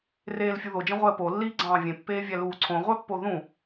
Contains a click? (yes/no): yes